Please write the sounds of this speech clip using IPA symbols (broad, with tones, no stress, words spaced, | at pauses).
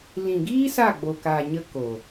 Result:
lĩ˨ɡiː˦ sa˦˨ɡ͡bo˨kaː˨ ɲə˦ko˨